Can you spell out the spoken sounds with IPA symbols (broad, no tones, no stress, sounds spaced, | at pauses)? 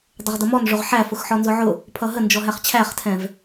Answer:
dˤ ʊ ʁ d ʌ m ɔ n ʐ ʊ ʁ ħ æ f ʊ x ħ ɔ n z ʊ ʕ ʊ | pʰ ʌ ɦ ə n d͡ʒ ɔ ɦ æ χ t͡ɕʰ æ χ tʰ ɛ̃ v